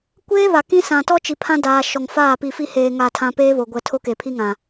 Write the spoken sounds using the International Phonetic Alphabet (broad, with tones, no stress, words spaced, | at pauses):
kʷeː˦ βa˨kĩ˦ sã˨tɔ˦ t͡ʃi˨pʰã˦daː˨ ʃɔ˨ŋfaː˦˨ pi˨fi˦heː˨ ŋa˦˨tʰã˦ peː˦βo˨ɡʷɛ˨ tʰo˦ke˨pʰi˦ŋã˨